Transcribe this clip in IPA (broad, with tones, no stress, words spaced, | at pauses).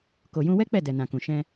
ko˨jũ˧wɛ˦ k͡pɛ˦˨dɛ˨nã˨kũ˨ ʃɛ̃˧